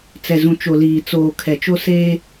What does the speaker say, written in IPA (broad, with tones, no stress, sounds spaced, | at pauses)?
t͡s ɛ˨ z ũ˨ t͡ʃ o˨ l iː˨ t͡s oː˨ kʰ ɛ˨ t͡ʃ o˦ s eː˦